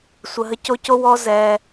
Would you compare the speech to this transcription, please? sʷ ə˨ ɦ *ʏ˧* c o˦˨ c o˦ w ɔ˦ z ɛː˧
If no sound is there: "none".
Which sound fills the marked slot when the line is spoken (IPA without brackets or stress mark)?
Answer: ə˧